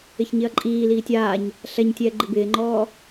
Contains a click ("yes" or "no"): yes